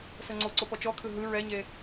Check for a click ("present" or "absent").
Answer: present